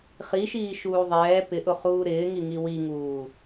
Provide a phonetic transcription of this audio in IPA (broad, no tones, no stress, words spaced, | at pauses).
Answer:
χiʃiː ʃuːðˤɛː pɪʔʊχuː ɾɪːŋiŋi wiŋuː